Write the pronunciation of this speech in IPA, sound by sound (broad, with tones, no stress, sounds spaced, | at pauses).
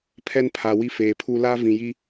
pʰ ɛ˦ n pʰ a˨ w i˦ f eː˨ pʰ u˦ l a˦ v ĩ˨ j i˦